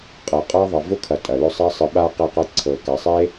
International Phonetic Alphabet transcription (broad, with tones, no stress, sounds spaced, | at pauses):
qʼ ɤ˩ qʼ a˥ ðˤ ɐ˨ v ʊ˥ kʰ ɐ˨ tʼ ɐ˩ l ʊ˦ sˤ ɐ˥ sˤ ɨ˨ ɓ a˥ q e˦ q ɤ˦ ǀʰ ɤ˨ k a˨ sˤ e˥